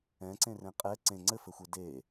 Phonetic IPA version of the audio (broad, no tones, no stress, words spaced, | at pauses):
ɛ̃ǀẽrẽ qʼɛ ǀẽ ŋ͡ǀɘfɘxʷe de